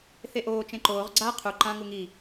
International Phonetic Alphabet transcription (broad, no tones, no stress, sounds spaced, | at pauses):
θ e ʔ oː t͡ʃ ẽ ǃ oː ʁ ɡ͡ǀ a qʰ u ǃ ã ŋ u ŋ i